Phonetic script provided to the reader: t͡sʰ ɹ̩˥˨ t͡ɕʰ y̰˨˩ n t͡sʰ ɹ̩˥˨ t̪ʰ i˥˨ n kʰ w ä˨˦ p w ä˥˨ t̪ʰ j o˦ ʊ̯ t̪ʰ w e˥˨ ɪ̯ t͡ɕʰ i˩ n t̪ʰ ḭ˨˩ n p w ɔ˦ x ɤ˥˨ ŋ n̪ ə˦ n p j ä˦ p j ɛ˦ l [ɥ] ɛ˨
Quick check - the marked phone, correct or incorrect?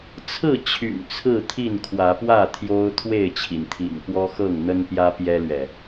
correct